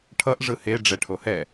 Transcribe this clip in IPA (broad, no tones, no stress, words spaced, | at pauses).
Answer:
ʈʰʌʔ ʐɯhe ɖ͡ʐɛʈʰohɛ